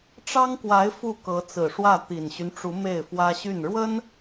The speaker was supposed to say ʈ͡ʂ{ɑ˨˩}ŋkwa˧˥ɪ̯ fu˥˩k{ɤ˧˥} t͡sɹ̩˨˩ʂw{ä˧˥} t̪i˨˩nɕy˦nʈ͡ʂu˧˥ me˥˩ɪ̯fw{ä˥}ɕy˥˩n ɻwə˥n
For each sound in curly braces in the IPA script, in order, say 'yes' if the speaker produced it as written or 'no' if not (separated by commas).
no, yes, no, yes